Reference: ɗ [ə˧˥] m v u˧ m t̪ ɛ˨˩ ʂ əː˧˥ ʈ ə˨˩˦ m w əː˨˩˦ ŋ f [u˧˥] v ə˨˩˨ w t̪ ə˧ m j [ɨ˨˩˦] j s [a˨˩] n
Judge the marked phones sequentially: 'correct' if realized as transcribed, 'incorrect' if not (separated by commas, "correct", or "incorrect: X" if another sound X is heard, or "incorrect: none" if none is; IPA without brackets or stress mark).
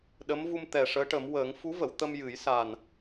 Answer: correct, correct, correct, correct